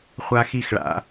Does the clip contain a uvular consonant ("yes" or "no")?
yes